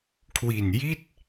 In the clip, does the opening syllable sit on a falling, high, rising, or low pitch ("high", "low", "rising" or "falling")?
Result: low